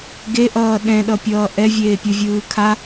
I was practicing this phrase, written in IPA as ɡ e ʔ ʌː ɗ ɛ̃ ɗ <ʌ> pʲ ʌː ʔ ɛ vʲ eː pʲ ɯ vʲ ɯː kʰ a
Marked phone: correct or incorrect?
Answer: correct